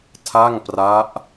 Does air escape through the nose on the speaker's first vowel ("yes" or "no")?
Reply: no